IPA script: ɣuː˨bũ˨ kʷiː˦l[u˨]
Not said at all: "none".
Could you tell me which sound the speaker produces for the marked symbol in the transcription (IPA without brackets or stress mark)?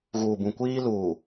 uː˨